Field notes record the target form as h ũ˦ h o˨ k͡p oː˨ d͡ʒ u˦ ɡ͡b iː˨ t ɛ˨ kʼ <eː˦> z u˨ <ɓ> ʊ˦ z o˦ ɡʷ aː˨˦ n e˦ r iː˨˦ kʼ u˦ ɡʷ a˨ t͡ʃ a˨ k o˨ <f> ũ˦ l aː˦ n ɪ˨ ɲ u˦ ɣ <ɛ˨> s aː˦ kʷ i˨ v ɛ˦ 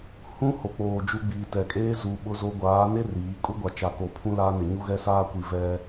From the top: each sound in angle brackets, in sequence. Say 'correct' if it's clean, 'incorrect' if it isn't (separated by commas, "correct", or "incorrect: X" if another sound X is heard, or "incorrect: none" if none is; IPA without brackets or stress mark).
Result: correct, correct, incorrect: pʰ, incorrect: ɛ˦